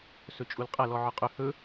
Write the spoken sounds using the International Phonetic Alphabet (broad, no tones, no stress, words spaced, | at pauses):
sɵt͡ʃʼulqʼɐ lɔʕɔqʼɵ hɵ